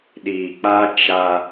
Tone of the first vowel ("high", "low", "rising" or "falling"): low